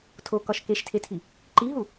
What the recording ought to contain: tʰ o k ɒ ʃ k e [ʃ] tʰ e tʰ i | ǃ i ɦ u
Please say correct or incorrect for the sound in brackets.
correct